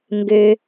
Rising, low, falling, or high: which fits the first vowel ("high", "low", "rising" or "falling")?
low